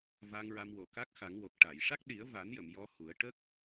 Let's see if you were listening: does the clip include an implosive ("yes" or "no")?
yes